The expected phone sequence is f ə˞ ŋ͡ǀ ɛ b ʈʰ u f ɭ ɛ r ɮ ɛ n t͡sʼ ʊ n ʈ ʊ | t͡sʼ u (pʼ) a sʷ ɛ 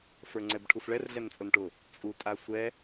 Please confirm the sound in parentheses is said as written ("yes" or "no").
no